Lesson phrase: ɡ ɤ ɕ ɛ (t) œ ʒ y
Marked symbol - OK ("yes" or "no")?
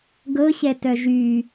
yes